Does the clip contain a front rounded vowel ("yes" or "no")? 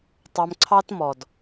no